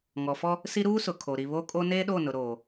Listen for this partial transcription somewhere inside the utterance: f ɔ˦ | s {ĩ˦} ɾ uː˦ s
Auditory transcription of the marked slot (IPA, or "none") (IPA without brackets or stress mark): i˦